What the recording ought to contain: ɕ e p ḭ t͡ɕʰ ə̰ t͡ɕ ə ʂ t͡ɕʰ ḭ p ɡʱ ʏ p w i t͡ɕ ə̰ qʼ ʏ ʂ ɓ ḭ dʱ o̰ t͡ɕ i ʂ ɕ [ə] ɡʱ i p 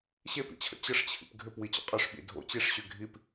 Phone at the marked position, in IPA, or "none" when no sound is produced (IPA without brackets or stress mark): ʏ